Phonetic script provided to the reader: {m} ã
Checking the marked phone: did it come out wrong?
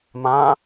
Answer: no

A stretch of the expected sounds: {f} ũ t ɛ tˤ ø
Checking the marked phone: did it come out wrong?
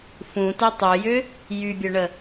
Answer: no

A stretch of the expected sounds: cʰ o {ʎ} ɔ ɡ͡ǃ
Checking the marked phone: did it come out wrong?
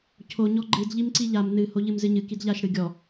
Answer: yes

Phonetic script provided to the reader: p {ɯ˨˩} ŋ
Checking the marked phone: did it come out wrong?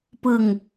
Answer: yes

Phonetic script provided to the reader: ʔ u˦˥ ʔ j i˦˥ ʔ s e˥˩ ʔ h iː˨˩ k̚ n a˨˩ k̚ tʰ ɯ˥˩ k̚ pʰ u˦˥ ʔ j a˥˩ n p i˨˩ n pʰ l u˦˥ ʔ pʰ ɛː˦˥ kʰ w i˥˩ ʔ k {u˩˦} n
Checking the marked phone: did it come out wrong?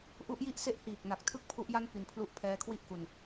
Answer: yes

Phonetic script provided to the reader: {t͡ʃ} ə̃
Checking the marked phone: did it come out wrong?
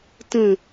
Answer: yes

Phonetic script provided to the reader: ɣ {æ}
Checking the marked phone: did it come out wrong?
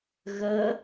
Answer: yes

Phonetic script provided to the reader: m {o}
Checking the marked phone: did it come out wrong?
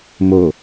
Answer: no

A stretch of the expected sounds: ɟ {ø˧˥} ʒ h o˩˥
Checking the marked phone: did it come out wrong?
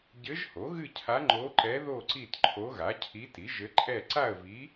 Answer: yes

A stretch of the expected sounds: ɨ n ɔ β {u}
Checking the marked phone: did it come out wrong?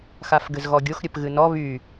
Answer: yes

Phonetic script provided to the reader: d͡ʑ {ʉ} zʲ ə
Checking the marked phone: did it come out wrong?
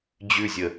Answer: no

